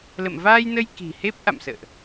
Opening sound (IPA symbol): l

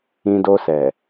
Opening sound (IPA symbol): ĩ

